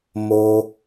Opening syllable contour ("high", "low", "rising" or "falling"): high